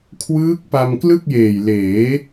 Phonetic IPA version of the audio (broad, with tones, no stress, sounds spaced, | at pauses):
kʰ w ɯː˦˥ k̚ p a˧ m k l ɯ˥˩ k̚ j eː˨˩ j l eː˩˦